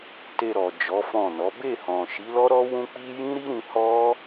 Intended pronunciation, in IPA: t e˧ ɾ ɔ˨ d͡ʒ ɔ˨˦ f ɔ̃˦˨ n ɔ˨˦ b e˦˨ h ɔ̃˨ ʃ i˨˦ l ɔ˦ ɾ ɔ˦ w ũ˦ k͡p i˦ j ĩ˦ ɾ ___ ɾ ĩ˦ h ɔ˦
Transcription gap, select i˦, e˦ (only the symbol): i˦